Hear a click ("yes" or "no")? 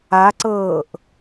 yes